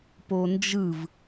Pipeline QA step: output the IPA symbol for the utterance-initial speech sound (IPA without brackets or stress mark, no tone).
p